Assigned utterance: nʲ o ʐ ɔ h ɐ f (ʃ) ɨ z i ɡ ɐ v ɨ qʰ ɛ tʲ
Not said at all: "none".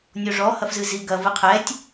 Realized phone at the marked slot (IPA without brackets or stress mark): z